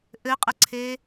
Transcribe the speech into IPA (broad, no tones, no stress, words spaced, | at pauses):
ʔɘqʼəǀʰe